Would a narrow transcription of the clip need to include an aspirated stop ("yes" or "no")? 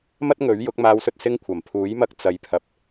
yes